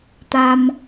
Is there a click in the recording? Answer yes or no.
no